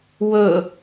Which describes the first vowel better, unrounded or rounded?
rounded